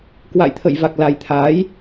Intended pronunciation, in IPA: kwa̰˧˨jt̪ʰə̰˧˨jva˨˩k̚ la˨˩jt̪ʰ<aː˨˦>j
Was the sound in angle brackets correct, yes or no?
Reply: yes